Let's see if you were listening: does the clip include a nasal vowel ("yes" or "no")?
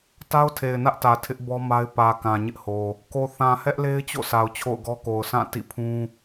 yes